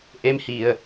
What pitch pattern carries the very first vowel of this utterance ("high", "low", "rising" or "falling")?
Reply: rising